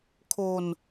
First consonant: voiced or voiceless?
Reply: voiceless